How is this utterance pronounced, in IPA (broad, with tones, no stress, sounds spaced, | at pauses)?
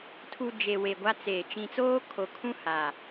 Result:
tʰ u˨ d͡ʒ e˨ w e˨ ɡʷ a˦ t͡s eː˨ t͡ʃ ĩ˨ t͡s oː˦ kʰ o˨ kʰ ũ˦ h a˨